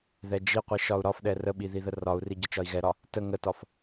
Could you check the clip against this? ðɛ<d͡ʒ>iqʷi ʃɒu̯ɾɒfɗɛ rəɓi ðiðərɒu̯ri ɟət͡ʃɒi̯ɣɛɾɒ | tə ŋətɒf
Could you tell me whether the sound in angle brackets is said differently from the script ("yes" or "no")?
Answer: no